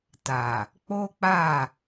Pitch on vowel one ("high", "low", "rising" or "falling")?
low